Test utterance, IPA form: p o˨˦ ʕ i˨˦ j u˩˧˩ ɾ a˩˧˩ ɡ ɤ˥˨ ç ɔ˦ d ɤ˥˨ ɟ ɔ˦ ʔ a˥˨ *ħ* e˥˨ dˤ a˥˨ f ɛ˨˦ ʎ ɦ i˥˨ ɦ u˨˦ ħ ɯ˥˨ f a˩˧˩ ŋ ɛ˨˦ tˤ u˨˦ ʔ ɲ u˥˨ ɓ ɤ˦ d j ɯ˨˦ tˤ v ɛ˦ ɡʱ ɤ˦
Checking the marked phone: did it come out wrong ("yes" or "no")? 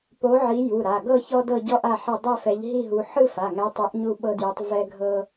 no